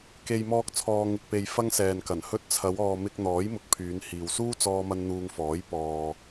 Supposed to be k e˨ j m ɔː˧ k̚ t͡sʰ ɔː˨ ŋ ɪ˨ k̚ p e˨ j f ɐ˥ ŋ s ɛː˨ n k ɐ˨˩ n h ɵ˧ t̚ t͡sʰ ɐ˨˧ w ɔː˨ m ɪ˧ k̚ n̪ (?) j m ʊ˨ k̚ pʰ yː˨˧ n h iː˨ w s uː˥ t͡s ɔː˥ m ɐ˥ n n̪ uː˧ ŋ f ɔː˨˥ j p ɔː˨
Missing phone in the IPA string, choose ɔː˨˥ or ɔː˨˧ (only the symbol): ɔː˨˥